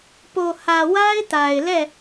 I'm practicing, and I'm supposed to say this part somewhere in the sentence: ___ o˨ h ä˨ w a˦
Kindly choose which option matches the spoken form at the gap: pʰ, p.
p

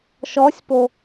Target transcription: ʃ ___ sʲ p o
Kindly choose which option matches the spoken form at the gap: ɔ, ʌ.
ɔ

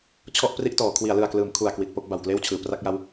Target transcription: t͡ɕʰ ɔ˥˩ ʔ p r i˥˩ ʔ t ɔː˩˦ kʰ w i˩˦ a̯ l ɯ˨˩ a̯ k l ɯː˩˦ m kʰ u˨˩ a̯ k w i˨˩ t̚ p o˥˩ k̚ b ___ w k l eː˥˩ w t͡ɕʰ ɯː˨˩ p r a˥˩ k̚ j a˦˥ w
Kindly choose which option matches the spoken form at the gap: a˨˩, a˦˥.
a˨˩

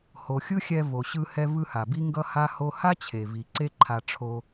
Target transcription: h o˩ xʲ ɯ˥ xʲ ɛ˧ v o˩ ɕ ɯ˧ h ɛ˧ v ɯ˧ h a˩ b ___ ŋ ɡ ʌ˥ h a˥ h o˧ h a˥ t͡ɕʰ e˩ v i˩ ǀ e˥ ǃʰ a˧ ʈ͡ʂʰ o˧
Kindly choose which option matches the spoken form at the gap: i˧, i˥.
i˥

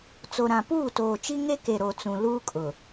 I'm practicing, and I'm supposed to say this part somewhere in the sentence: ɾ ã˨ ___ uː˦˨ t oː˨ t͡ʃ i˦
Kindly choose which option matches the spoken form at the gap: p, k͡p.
p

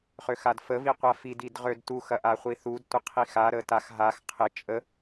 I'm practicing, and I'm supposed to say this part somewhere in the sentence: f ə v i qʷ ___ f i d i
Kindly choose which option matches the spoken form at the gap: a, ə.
a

